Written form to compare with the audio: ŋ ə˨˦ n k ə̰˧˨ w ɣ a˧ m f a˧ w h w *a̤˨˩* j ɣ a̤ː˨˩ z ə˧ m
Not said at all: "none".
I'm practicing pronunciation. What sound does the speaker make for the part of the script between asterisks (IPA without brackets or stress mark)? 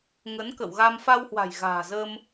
a̤˨˩